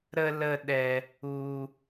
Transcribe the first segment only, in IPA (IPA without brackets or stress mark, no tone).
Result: ɾ